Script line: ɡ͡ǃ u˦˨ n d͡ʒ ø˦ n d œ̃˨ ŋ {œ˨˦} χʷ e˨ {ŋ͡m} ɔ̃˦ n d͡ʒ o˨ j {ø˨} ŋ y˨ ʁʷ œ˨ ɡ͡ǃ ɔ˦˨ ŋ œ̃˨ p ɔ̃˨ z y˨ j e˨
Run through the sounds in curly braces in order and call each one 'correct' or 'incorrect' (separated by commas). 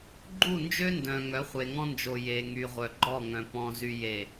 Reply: correct, incorrect, incorrect